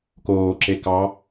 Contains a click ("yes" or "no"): yes